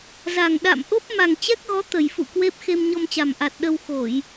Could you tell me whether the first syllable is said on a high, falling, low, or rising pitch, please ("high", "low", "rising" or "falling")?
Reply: low